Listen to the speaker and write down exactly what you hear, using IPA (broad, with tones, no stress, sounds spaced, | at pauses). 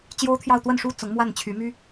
t͡ɕ j o˥ ʊ̯ t̪ʰ j ɑ˥˧ ʊ̯ t̪ w ə˥˩ n ʂ u˥ t͡s ʊ˧˥ ŋ m w a˥˩ n t͡ɕʰ y˧˥ m y˥